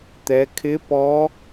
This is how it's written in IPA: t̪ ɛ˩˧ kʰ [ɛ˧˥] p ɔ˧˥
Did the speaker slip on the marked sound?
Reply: yes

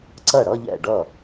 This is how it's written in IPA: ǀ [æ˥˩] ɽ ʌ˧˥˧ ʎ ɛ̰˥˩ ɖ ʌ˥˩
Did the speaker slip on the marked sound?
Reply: yes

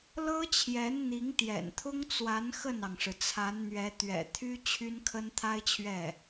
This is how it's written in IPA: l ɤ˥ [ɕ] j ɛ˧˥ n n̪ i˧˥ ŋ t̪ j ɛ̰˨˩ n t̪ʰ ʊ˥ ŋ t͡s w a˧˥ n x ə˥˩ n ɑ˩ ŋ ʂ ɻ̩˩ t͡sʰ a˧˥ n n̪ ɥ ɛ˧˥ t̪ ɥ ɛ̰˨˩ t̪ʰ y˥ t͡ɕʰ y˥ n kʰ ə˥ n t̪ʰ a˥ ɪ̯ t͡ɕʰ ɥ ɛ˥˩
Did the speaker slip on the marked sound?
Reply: yes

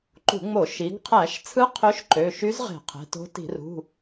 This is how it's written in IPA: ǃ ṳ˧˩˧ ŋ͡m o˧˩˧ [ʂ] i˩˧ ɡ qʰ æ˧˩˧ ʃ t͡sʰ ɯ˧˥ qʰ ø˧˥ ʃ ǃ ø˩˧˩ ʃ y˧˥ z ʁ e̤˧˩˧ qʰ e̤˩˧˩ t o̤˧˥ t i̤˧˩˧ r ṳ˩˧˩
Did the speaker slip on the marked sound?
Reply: yes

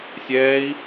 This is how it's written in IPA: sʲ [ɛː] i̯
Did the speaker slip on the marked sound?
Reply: no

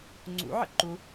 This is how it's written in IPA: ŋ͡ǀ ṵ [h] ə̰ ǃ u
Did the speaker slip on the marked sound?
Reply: yes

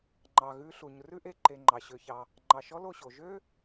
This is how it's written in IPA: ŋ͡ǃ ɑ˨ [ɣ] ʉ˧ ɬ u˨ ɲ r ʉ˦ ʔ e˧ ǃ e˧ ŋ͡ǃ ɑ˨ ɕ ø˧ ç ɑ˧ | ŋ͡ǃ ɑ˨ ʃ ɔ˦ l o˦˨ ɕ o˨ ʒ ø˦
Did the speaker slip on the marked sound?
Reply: no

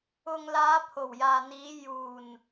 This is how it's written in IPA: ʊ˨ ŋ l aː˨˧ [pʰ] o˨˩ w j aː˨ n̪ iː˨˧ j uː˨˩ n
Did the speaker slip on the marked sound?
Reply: no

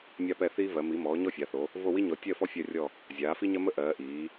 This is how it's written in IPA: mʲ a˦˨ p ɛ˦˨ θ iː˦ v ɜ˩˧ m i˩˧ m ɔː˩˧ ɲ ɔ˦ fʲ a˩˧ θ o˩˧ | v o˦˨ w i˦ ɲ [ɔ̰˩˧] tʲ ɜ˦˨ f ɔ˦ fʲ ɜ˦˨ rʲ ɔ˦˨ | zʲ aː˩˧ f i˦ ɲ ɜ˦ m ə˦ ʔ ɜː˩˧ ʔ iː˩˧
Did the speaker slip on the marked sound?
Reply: yes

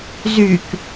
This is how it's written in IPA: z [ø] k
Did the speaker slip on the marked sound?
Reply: yes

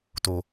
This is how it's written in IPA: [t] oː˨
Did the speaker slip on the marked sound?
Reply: no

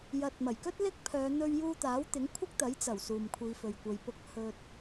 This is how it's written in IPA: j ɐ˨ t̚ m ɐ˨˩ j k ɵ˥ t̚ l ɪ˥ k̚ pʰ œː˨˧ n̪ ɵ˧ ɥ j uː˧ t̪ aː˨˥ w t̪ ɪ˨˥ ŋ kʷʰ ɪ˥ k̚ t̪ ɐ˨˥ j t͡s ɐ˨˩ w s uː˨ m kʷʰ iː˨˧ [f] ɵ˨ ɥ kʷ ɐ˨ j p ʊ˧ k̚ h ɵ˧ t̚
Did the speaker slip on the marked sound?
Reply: no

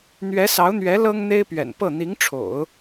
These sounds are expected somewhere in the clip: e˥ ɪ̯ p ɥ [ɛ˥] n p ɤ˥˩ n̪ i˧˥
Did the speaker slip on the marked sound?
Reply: yes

